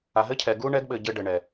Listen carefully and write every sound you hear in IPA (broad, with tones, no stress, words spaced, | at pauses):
a˨ɦɘ˦cʰɛ˨ ɡu˦ɳɛ˦ɡɓɘ˨ ɟɘ˦ɖɘ˨ɳɛ˨